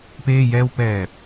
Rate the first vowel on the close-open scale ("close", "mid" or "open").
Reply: mid